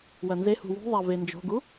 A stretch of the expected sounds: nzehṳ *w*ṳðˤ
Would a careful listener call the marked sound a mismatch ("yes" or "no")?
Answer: no